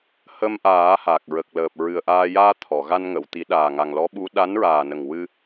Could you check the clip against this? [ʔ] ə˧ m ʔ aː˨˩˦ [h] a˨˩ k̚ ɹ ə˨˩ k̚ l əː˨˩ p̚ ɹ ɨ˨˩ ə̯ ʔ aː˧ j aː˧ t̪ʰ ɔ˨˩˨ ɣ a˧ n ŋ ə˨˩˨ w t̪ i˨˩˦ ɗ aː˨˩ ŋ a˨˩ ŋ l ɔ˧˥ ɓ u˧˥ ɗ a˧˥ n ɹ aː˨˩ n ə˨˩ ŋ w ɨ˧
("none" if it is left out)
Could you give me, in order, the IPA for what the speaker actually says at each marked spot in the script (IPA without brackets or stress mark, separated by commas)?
h, h